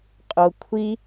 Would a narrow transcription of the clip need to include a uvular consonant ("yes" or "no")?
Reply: yes